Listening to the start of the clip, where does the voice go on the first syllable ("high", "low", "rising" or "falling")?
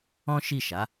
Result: high